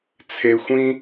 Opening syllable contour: low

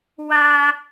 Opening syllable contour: high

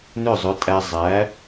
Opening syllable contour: falling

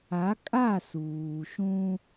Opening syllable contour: rising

